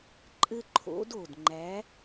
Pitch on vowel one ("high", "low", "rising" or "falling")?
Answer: high